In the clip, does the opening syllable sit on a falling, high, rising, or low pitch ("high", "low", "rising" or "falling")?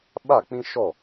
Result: falling